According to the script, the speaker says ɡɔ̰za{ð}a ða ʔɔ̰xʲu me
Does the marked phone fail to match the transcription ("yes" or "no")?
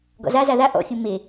yes